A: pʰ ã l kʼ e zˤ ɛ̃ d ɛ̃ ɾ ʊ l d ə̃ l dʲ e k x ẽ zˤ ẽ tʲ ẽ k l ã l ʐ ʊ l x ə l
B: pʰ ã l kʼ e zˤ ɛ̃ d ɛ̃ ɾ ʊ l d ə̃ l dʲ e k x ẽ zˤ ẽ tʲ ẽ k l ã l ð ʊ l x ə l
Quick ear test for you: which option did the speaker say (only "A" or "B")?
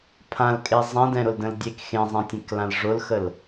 A